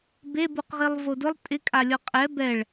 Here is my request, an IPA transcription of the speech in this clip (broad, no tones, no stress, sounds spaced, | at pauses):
b e b u q ʁ i lˠ v o d ʊ lˠ tʼ ɪ kʼ a lʲ ɔ qʼ ɛ b ɛ ɭ